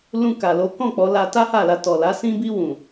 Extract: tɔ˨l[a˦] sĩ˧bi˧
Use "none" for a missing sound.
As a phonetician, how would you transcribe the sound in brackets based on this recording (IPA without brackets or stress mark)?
a˨˦